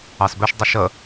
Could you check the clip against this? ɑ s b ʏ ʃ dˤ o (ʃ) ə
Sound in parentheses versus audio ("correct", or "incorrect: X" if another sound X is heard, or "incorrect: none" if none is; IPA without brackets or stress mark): correct